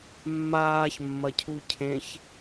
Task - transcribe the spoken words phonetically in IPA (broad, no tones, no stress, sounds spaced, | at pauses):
mː aː ç mː ɐ cʰ u cʰ ẽ ç